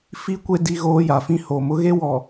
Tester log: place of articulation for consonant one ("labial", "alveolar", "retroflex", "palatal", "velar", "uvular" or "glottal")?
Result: labial